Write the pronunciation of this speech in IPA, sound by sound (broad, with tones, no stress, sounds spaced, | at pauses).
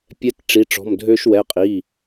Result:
pʲ ɛ˧˥ t ʈ͡ʂ i˩˧˩ ʈ͡ʂ ɔ̤˩˧˩ m dʱ ø˧ ʃ w ɛ˩˧˩ qʼ i˩˧˩